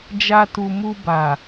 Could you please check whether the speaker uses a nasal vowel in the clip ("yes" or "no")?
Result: no